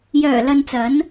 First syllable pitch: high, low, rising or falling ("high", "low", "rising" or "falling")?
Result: low